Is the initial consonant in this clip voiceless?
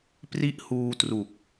yes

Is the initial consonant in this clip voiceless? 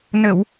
no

